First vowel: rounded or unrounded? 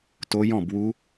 rounded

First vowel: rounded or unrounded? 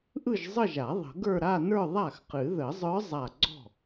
unrounded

